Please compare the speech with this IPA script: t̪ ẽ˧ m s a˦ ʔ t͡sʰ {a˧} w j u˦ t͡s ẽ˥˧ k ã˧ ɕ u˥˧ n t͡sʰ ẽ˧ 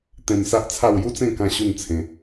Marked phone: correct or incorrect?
incorrect